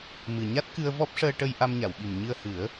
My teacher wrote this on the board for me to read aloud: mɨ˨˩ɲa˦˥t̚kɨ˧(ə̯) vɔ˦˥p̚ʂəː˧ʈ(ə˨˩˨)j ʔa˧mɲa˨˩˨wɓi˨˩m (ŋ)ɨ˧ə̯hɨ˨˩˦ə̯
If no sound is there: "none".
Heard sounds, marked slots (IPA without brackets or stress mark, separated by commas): ə̯, ə˧, ɲ